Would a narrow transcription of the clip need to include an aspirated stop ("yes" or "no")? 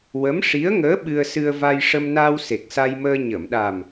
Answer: no